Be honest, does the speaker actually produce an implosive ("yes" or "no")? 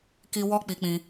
no